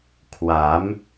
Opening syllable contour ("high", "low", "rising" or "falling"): rising